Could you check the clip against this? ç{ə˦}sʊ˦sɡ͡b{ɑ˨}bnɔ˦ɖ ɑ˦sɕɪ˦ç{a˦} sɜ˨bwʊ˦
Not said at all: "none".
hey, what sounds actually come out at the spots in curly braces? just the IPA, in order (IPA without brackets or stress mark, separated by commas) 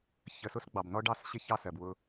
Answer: ə˨, ɑ˨, ɑ˦